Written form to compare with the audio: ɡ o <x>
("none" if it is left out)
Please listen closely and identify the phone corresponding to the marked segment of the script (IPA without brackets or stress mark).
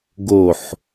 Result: ħ